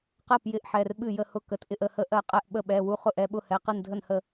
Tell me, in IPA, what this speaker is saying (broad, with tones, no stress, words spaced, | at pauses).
qɜ˥˩pjɪ˥˩ʔħɛ˩˧˩r ɓɨ˥˩jə˥˩hʊ˥˩ kə˩˧˩tʔɪ˥˩ʔə˥˩hə˥˩ ʔɜ˥˩ qʼɛ˥˩ʔɓə˥˩ ɓɛ˩˧˩wu˥˩ χʊ˥˩ʔɛ˩˧˩ɓʊ˥˩hɛ˩˧˩ qɨ˥˩ndʱə˥˩nhə˥˩